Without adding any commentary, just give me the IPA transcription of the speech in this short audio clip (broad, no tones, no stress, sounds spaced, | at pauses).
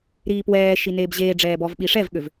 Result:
ɾ iː p w ɛː ʃ i n eː b ʑ eː ɖ͡ʐ ɛː b ɔ v ɓ i ʂ ɛ v ɠ ø v